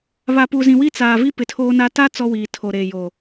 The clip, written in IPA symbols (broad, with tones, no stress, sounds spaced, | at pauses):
β a˨ p u˨ z ĩ˨ w i˦ t͡s aː˨ v i˦ p ɪ˨ tʰ oː˦ n a˦ t a˦ t͡s ɔ˦ w iː˨ tʰ o˨ ɾ eː˨ j oː˨